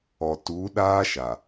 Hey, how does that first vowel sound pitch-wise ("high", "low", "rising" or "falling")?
low